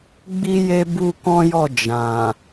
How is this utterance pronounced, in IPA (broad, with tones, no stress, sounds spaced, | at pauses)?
ɡ͡b i˦ j e˦ b u˦ k ɔ̃˦ j ɔ˦˨ d͡ʒ ã˨